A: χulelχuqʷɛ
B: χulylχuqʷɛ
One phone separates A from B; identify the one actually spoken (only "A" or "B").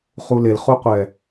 A